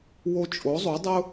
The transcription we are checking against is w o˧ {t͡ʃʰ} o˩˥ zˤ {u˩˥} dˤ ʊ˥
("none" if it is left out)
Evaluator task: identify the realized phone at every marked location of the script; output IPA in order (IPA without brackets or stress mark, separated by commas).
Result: t͡ʃʼ, u˩˥